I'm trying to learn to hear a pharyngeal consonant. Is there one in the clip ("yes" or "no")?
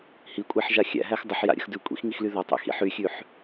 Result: yes